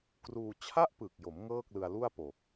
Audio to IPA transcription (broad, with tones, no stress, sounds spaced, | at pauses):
k r uː˧ t͡ɕʰ a˥˩ ʔ p ɯ˨˩ k̚ j o˩˦ m ŋ ɤː˥˩ k̚ l ɯ˧ a̯ l u˥˩ a̯ p o˨˩ k̚